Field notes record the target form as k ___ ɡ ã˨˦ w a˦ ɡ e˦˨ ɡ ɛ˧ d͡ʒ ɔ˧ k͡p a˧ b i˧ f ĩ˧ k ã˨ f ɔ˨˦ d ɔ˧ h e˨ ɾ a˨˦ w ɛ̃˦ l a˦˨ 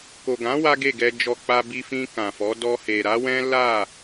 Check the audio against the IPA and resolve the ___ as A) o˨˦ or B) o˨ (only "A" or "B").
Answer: B